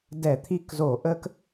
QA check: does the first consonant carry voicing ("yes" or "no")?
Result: yes